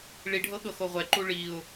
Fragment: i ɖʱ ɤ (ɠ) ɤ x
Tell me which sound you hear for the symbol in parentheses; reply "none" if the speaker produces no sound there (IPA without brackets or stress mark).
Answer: ɠ